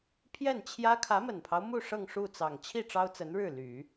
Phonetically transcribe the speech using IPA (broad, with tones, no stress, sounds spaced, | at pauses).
pʰ j ɛ˥˩ n t͡ɕʰ j ä˥ kʰ ä˧˥ m ə˨˩ n pʰ ɑ˦ ʊ̯ m u˥˧ ʂ ɤ˥˧ ŋ ʂ u˥˩ t͡s ɑ˨˩ ŋ t͡ɕʰ i˥˩ ʈ͡ʂ ɑ˥ ʊ̯ t͡s ə˧˥ n ɻ ɻ̩˥˩ l y˨˩˦